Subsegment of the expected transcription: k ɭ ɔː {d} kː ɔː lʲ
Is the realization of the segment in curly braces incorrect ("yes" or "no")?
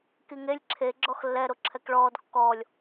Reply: no